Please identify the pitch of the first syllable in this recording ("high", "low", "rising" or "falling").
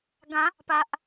rising